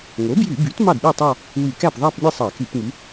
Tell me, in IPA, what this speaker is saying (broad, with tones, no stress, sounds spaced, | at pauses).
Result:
ŋ o˩˥ b j y˧˩˧ b y˩˥ t m ɑ˥˩ d ɗ ɯ˥˩ tˤ ɑ˥˧ | w y˧˩˧ k æ˥˩ p ðˤ æ˥˧ p mʲ e˥˧ sˤ ɑ˧˩˧ k y˧˩˧ p ŋ y˩˥